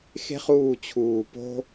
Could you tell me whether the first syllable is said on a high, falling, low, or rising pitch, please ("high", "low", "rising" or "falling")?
high